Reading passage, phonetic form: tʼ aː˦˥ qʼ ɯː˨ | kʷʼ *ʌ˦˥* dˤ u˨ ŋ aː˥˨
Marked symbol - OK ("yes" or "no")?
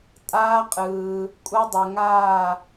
yes